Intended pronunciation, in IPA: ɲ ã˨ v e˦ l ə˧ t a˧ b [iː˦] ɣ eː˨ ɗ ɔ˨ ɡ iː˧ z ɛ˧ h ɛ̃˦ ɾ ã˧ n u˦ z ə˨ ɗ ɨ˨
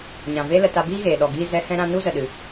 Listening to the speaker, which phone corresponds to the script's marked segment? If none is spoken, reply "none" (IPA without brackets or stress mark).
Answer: iː˦